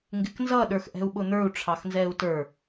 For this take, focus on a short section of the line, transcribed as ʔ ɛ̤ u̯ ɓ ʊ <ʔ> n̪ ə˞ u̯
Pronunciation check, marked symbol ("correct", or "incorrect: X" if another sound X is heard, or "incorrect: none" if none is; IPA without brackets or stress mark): incorrect: none